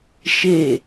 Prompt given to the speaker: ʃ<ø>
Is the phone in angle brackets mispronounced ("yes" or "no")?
yes